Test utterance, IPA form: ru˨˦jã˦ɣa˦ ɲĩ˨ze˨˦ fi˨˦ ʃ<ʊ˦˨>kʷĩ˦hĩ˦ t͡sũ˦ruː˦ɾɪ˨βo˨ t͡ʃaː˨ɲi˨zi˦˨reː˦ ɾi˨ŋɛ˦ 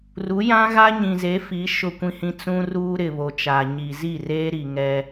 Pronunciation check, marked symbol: correct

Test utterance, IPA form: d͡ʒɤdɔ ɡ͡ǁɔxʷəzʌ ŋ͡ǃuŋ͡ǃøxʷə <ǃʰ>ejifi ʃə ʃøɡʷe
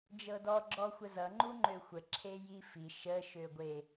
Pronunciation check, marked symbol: incorrect: ǁʰ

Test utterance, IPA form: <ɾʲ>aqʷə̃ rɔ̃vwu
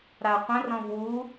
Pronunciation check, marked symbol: incorrect: ɾ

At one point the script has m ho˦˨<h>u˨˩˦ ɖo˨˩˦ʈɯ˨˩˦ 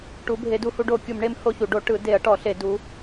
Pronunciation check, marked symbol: incorrect: ç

